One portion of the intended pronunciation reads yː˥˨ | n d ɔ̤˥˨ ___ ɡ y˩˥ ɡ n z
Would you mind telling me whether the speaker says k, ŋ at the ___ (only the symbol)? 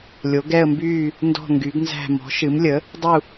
ŋ